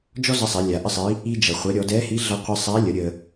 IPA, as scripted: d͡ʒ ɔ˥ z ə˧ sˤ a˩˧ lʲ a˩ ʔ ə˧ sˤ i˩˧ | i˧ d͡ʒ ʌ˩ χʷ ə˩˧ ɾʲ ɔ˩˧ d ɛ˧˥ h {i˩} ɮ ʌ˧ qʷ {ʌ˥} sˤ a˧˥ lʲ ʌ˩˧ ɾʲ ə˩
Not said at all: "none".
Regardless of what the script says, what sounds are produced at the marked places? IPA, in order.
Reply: i˧˥, ʌ˧

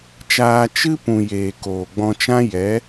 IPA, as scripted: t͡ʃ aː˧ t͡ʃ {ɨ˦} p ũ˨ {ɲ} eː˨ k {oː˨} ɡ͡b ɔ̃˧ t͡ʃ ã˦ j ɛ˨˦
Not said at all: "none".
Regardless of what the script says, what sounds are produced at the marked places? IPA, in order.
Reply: ɨ˦, j, oː˨

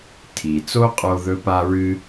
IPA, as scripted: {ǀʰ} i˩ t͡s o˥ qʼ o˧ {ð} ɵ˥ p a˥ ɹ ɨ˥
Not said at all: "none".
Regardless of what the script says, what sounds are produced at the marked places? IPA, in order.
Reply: tʰ, ð

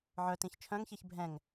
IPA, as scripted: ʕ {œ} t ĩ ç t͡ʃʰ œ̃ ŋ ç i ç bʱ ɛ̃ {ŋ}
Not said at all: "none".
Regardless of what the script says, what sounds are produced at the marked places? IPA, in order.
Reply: œ, ŋ

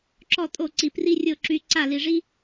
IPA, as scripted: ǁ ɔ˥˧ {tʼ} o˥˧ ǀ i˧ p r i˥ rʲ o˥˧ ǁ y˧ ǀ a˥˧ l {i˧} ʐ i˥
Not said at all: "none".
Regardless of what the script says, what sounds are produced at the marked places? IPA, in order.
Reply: tʼ, i˧

